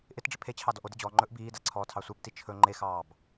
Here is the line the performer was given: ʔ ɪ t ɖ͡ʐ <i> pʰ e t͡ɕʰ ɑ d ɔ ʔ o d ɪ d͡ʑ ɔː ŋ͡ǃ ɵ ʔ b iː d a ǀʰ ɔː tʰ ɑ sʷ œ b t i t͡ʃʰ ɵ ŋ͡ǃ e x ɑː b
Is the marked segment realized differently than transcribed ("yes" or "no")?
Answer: yes